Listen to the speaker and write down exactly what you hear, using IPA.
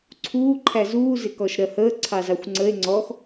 ǀʰ uː ǃʰ æ z uː z ɪ k ɔ ʃ ɾ ɜ h əː ǀʰ ɑ z ɑ xʷ ŋ͡ǀ ə e̯ ŋ͡ǀ ɔ x

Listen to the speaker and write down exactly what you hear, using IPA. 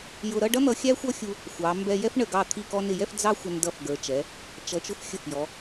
j ʊ˧ ɾ ʌ˥˧ ɖ ʌ˥ n̪ ʌ˧ xʲ æ˥ xʷ ʌ˥ xʲ u˧ | xʷ ɑ˩˧ m b ɛ˧ j ɛ˥ f ɳ ə˧˩ ɡ ɑ˧˩ t̪ʰ i˧˩ k ɔ˧ n ɪ˧˩ j ɛ˥˧ f d͡z ɑ˥ xʷ ʌ˧ n d ʌ˧ f ɡ ə˞˩˧ t͡ʃ ɛ˩˧ | t͡ʃ ʌ˩˧ t͡ʃ ʊ˧ f xʲ ə˧˩ f j ɔ˩˧

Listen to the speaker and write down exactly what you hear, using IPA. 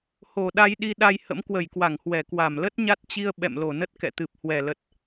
h o˨˩ ɗ a˧ j ɗ i˧ ɗ a˧ j h ə̰˧˥ m k w ə˧˩ j k w a˧˩ ŋ h w ɛ˧˩ k w a˧˩ m l ə˦˥ t̚ ɲ a˦˥ t̚ t͡ɕ i˧ ə̯ ɓ ɛ̰˧˨ m l o˧˩ n ə˦˥ t̚ k ɛ̰˧˨ t̪ ɨ˨˩ p̚ h w ɛ˨˩ l ə˨˩ t̚

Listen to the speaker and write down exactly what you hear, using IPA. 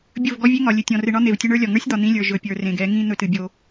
bʲ ɵ˦˨ v ɡ ɔ˦ vʲ e˦ ŋ ɒ˨ lʲ ɨ˨ tʲ ɔ̃˨ r ɨ˨ ɳ ɒ˦ n̪ e˨ v tʲ ɵ˦ ɳ ə˞˦ lʲ ɒ˨ ŋ ə˞˦ sʲ d̪ ɒ˨ n̪ ĩ˦ lʲ ə˞˨ ʒ ɵ˨ pʲ ə˞˨ r ẽ˨ ɡ ɛ˨˦ ŋ ĩ˦ n̪ ɵ˦ t ɨ˨ bʲ o˦

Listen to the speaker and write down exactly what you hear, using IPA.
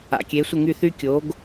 a̰˩ kʲ e˩˥ sʷ ə˥˩ ŋ y˥˩ θ y˥ kʲ o˩˥ ɡ

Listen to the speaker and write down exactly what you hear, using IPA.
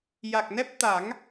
j a˨˩ k̚ n ɛ˦˥ p̚ t̪ a˨˩˦ ŋ

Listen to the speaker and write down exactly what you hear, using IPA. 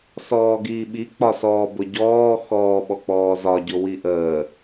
s ɔː ɡ iː ɓ i k͡p ɒ s ɔː b ʊ ɟ ɔː x ɔː ɓ ɔ k͡p ɔː z ɒ ɟ ʊ w i ʔ əː

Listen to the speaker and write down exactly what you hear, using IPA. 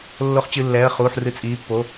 lː o˨˦ χ t͡ɕ ɨ˩˧˩ lː ɛː˩˧˩ ə̯ χ uː˩˧˩ ħ r ɨ˨˦ t͡sʼ iː˩˧˩ pː o˩˧˩

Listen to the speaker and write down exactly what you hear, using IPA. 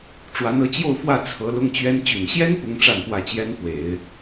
ʈ͡ʂ w a˧˥ n ɤ˧˥ t͡ɕ j o˥˧ ʊ̯ f w ä˥˩ t͡sʰ ɤ˧˥ l ʊ˥ ŋ t͡ɕ ɥ ɛ˥ n t͡ɕ y˨˩ n ɕ j ɛ˥ n p ʊ˥ ŋ ʈ͡ʂ a˥˧ n p w ä˥˩ t͡ɕ j ɛ˥ n f w e˨˩˦ ɪ̯

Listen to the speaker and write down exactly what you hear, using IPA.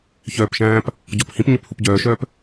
ç œː p ʃ æ̃ː p | ɟ ɔ p h ĩ p ɲ ɵ p h u p ɟ œː ʃ œː p

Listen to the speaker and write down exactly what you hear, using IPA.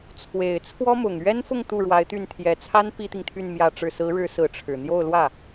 t͡sʰ w e˨˩ ɪ̯ t͡sʰ w ɔ˥ m ʊ˨˩ ŋ ɥ ɛ˥ n f ʊ˥˧ ŋ t̪ u˥˩ ɻ w a˧˥ ɪ̯ t̪ y˥˩ n t̪ʰ j ɛ˨˩ t͡sʰ a˥ n p i˥ t̪ i˨ ŋ t̪ʰ y˥˧ n m j ä˥˧ ʈ͡ʂ ɻ̩˥˩ s ɹ̩˧˥ ɻ ɻ̩˧˥ s ɹ̩˧˥ ʈ͡ʂʰ ɻ̩˨˩ n̪ j o˥˧ ʊ̯ l w ä˥˩

